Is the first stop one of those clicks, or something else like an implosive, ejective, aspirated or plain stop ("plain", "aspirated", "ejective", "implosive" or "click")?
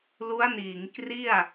plain